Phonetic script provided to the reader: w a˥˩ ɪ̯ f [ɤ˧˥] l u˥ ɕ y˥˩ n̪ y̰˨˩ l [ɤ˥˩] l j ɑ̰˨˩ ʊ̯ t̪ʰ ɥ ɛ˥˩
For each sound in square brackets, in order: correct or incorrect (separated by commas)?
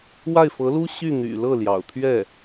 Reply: correct, correct